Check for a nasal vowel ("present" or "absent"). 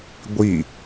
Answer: absent